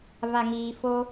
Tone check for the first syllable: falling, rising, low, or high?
low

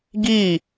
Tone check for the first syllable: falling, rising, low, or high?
falling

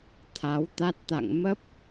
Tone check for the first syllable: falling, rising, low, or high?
rising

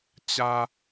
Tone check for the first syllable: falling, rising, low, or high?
high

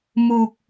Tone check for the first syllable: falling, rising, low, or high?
low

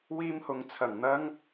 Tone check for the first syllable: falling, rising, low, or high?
high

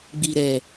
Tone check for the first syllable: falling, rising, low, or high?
low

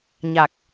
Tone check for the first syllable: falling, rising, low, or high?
low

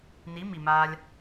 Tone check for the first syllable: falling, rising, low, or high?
rising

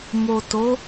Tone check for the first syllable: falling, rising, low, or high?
low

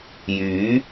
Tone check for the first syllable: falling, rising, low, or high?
rising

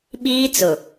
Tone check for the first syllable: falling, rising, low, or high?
high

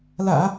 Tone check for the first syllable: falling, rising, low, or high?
low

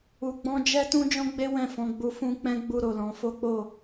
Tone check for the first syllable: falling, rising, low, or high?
low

